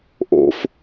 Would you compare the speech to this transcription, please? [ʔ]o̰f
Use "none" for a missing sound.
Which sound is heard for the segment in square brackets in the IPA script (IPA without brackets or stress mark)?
ʔ